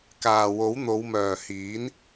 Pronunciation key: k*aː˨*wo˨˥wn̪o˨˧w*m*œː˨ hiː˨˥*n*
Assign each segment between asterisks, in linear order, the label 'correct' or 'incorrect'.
correct, correct, correct

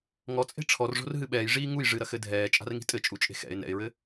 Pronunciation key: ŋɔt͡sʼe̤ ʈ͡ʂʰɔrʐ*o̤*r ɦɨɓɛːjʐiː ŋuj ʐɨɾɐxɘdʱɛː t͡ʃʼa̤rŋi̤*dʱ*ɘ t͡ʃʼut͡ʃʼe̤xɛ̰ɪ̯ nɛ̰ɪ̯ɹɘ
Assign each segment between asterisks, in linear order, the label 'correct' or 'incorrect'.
correct, incorrect: tʼ

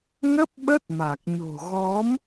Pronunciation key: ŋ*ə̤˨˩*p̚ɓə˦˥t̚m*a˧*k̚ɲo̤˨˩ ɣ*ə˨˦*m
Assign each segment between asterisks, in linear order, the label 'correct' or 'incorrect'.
incorrect: ə˦˥, incorrect: a˨˩, incorrect: ɔ˨˦

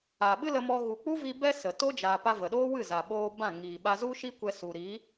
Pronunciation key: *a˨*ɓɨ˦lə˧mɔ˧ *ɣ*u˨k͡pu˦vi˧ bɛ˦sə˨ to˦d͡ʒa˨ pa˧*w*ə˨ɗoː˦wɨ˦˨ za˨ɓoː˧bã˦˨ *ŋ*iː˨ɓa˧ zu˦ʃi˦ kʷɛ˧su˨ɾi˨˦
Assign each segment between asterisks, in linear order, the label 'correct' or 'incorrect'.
correct, correct, incorrect: v, correct

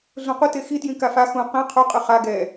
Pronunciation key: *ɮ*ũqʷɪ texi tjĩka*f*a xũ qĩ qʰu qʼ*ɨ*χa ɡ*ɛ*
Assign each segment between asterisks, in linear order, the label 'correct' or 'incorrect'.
correct, correct, correct, correct

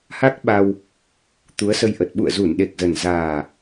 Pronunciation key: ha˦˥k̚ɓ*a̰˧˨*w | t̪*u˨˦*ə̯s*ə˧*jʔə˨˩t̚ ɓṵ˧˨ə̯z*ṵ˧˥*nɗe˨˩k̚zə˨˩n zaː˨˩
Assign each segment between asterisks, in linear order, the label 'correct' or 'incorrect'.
incorrect: a˧, correct, correct, incorrect: u˧˩

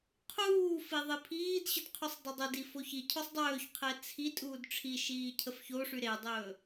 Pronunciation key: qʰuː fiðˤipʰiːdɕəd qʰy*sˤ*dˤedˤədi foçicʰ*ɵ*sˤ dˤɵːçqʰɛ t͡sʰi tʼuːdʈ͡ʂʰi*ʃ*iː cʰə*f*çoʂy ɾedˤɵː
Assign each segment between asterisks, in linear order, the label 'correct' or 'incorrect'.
correct, correct, correct, correct

